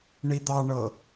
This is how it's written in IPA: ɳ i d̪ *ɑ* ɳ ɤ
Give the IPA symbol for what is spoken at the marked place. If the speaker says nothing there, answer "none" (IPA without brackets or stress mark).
ɑ